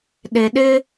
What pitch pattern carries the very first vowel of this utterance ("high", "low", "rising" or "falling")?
low